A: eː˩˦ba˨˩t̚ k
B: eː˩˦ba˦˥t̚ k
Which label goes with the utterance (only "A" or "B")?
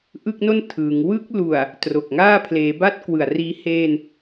B